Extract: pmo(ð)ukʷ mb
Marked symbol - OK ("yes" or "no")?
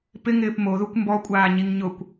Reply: yes